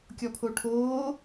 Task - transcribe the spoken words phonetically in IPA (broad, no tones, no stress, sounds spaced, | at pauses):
kʲ ɔ pʰ o ʈʰ oː